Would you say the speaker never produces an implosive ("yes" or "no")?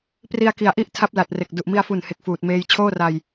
yes